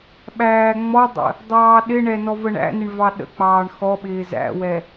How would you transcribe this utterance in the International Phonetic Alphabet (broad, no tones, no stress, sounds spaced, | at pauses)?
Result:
ɓ æː ŋ͡m ɔ dˤ ə̰ | dˤ ɑː ɗ ɪ ɳ ɛ n ɔ v ə ɳ æ̰ n ɪ ɳ v ɑ ɗ ə̰ k͡p ɑː ɳ x ɔ ɓ ɪː z æ̰ w ɛ